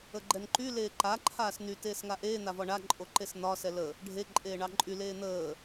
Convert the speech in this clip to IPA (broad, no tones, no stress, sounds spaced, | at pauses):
ə ɡ͡ǃ ɛ n ǃ y l eː ǃ a ǃʰ aː s n y t eː s ŋ a ʔ eː n̪ a v ɒ ɳ a ǃʼ o ǃ e s n̪ ɒ s ɛ l ə | ɖʱ e ǃʼ eː ɳ ɑ ǃʼ y l eː n̪ əː